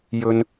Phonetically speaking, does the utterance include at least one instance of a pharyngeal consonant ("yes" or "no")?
no